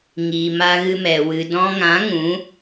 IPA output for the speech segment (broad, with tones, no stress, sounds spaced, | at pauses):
ŋ iː˨ m a˧ ɣ ɨ˧ m ɛ˨ w ɨ˨ d ɔ̃˧ ŋ ã˨˦ ŋ ũ˨˦